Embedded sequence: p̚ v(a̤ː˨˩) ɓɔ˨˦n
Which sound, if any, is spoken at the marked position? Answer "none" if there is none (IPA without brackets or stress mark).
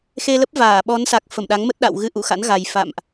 aː˧˩